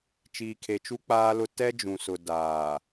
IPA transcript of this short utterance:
t͡ʃ iː˨ kʰ e˨ t͡ʃ u˦ k͡p aː˦ l ʊ˦ t ɛ˦ d͡ʒ ũ˨ s ʊ˨ d aː˨

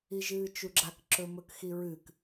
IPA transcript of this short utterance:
i ʒ ɨː t͡ʃ u ɡ͡ǁ a k ǁ ɵ m ɵ k x i ɹ ɨ k

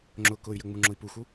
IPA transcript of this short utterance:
ŋ͡ǁ ʊ k ʊ y̯ j ə ŋ͡m u ŋ͡ǁ ʊ i̯ p u x u

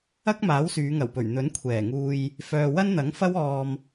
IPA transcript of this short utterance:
ɐ˥ k̚ m aː˨˥ w s yː˨˧ ŋ ɐ˨˩ w p ɵ˨˩ ɥ n̪ ɵ˨˥ n kʷʰ ɛː˨˩ ŋ uː˧ j | f œː˨ w ɐ˥ n n̪ ɐ˨˥ ŋ f ɐ˥ w ɔː˧ m

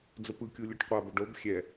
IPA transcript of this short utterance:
d͡z ə p ɯ kʲ u lʲ ɵ ʈ qʷ a b ə ɖ o b xʲ ɛ

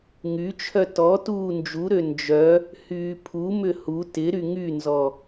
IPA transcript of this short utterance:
ŋ y t͡ʃʰ œ t ɔ t uː n d͡ʒ u ɾ ø n d͡ʒ œ | h yː pʰ u m ʏ h u t ɪ ɾ y ŋ y n z ɔ

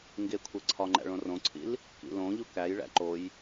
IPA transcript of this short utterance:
ŋ ɡ e kʷʰ e ǀʰ ɒ ŋ͡ǃ æ̰ ɭ õ r õ ǀʰ ḭ l | k ḭ l õ ʎ u k æ j ɭ æ̰ ǃ o j

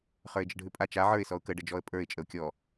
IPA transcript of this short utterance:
χ ə˞ ɪ̯ d͡ʒ ə ɖʱ ʉ pʼ a t͡ʃ a ʕ ə˞ ɪ̯ s ɔ ʊ̯ k ə ɖ ə d͡ʒ ɔ ə̯ pʼ ə˞ ɪ̯ t͡ʃʼ ə ʊ̯ kʲ ɔ

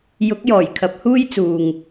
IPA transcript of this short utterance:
j ʊ˨˥ k̚ j ɔː˨˩ j kʰ ɐ˨˥ p̚ h uː˥ j t͡s uː˨ ŋ

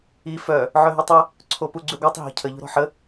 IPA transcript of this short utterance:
i f œ | ʕ œ ɦ y tˤ ɛ | ǀʰ o p u ɡ͡ǀ y ɡʷ œ tˤ ɦ ɔ̤ cʰ ə ʎ o̤ ɾ ɔ̤ ħ ə

